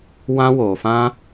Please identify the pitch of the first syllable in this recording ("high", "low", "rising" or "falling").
high